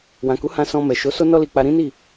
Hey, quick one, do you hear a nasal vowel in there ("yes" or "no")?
yes